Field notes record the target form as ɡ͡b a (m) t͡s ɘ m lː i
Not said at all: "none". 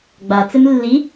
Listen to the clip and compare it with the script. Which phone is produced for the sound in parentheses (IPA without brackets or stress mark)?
none